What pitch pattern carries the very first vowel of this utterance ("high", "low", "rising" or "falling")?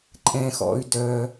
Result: low